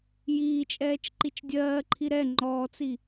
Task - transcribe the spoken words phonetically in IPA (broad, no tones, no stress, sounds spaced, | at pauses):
j iː t͡ʃʼ ɛː t͡ʃ ǃ i t͡ʃ dʲ ɜː ǃʰ i ɾ ɛ ŋ͡ǃ ɔː t͡s i